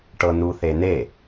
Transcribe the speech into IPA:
ʈ ɤ n u θ e n e

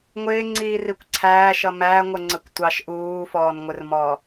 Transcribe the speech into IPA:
ŋʷ ɪː ŋ͡ǀ iː r i kʷ ǀʰ æː ʃ ʌ m æ ŋʷ ə ŋ͡ǀ ə kʷ tʷ ɑ ʃ ʔ uː f ɔː n ŋʷ ɪ r m ɔ

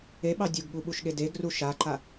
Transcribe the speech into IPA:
e ɓ ɑ dʲ u ɡ ɠ u ɓ u ʃ ɠ e d e ɡ r u ʃ a ǃ a

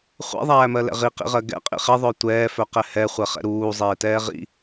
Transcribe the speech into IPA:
χʷ ɛ̰ ðˤ æː m ɜ l ɛ̰ ʁ i q ḭ ʁ ɜ ɡ ɛ̰ qʼ ḭ χ e ðˤ œ tʷ ɛː f œ q ɛ h ɛ χʷ ɛ χ ɛ̰ ɾ uː zˤ eː t ɛː ʁ ḭ

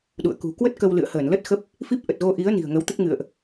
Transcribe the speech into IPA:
ɗ ṵ˧˨ ə̯ k ṳ˨˩ k w ə˦˥ t̚ k ə˧ w l ɨ̰˧˨ ə̯ h əː˧˩ n l ə˦˥ t̚ x ə˦˥ p̚ | f i˦˥ p̚ ʔ ə˨˩ t̚ ɣ o˧ ʔ i˨˦ ə̯ n i̤˨˩ ə̯ ŋ ə˨˦ w t̪ ə˦˥ t̚ ŋ ɨ̰˧˨ ə̯ ʔ

